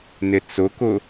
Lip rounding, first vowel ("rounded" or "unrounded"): unrounded